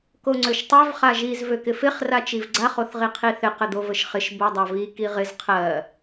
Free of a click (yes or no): no